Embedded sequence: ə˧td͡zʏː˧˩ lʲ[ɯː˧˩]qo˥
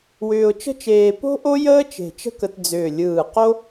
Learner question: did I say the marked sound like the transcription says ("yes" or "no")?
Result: yes